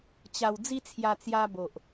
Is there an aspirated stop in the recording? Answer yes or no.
yes